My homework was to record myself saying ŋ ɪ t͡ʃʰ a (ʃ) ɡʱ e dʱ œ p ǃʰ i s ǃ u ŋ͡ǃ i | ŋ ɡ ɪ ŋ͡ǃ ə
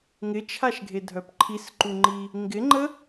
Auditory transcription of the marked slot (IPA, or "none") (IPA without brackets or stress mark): ʃ